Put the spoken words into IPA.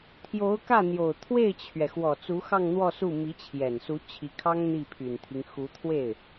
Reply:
t̪ʰ j o˧˥ ʊ̯ k ä˥˩ n̪ j o˨˩ ʊ̯ t̪ʰ w e˥˩ ɪ̯ t͡ɕʰ ɥ ɛ˩ x w ɔ˨˩ t͡s u˧˥ x ɑ˥˧ ŋ n̪ w ɔ˥˧ s u˥˩ m i˧˥ t͡ɕʰ j ɛ˨˩ n s u˧˥ t͡ɕʰ i˧˥ kʰ ɑ˥ ŋ n̪ i˥˩ pʰ y˨˩ n t̪ʰ i˦ ŋ x u˧˥ t̪ʰ w e˥˩ ɪ̯

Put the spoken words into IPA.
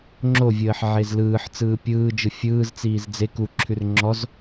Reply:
ŋ͡ǁ o vʲ əː ħ ʕ e z l ɯː ħ t͡s ɯː pʲ ɯː d͡ʒ ɯ fʲ ɯː z t͡s iː z d͡z e k u ǁʰ ʉ r ŋ͡ǁ ɔ z

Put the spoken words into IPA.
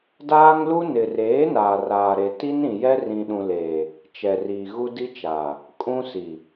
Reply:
d aː˦ ŋ l u˦ n ɪ˨ r eː˨˦ n aː˨ r aː˨ ɾ e˨ t i˦ n ĩ˨ j ɛ˦ r ĩ˨ ɗ ũ˨ l eː˨ | t͡ʃ ɛ˨ r iː˨ ɣ u˦ d i˦ t͡ʃ aː˨ | kʼ ũ˦ s i˨

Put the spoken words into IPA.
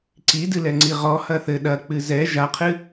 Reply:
ǀ i d ɨ l ɛ ŋ͡ǀ i ʁ ɔ h ɐ θ ɘ ɗ ɐ k͡p ɨ z ɛ ʒ a qʰ ɨ

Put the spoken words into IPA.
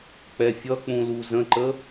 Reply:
k͡p ɛ fʲ ʌ k͡p ũ l u z ə̃ ǃ ə

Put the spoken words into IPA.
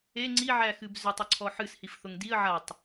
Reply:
e ŋ͡ǀ i ʕ æ x ɨ b z ʏ tˤ ʊ ǀʰ ɔ ħ ɨ s h i f θ ʊ ŋ d i ə̯ ʕ a tˤ

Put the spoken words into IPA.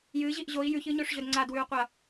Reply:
j ɨ ʑ i ʔ ʑ o i̯ j ʉ ç ɨ ɲ o ʂ ʑ ɵ d ŋ͡ǀ a d w ʉ u̯ qʷ ɐ

